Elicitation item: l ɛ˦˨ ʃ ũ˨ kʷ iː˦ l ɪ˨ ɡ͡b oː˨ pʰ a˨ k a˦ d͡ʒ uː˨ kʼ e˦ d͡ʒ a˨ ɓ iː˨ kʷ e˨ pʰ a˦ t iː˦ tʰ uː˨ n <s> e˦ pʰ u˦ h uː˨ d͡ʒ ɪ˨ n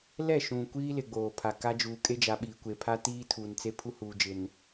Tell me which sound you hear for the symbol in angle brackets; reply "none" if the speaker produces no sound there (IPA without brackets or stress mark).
t͡s